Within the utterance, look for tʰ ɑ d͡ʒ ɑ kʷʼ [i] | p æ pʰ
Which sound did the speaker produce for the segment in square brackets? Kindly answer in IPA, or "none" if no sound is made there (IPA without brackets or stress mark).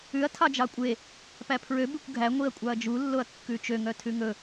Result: e